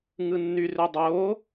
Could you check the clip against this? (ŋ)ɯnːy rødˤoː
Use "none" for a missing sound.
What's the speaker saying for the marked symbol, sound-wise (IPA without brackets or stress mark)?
ŋ